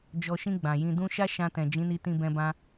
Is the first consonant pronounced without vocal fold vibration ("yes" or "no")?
no